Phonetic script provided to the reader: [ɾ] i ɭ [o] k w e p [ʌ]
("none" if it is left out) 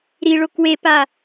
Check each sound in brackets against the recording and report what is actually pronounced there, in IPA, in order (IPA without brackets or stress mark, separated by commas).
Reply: ɾ, o, a